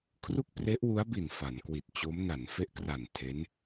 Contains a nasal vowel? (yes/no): no